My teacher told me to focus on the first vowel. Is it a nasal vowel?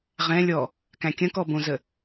yes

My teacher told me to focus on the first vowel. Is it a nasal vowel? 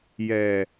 no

